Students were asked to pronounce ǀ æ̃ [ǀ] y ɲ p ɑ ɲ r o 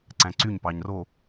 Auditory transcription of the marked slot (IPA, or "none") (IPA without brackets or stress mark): ǀ